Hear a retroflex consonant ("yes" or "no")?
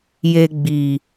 no